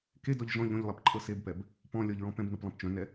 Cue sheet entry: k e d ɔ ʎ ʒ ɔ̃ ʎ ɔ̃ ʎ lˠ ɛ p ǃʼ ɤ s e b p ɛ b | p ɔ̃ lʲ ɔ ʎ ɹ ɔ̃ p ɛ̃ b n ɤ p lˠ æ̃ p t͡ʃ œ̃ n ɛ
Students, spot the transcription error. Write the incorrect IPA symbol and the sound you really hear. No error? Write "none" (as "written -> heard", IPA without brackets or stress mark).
æ̃ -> ɛ̃